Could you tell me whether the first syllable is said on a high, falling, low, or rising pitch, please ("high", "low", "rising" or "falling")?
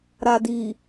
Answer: low